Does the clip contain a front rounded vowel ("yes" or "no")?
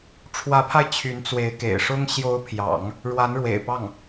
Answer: yes